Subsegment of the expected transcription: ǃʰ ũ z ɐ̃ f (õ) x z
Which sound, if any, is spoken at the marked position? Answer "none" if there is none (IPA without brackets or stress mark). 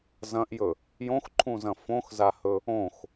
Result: õ